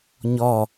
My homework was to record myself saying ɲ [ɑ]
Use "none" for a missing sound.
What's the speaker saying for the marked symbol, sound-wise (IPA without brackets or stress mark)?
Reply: ɔ